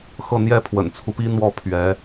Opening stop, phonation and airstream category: aspirated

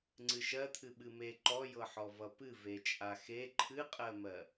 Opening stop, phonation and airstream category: click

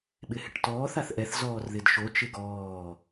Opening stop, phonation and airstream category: implosive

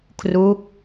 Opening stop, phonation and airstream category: aspirated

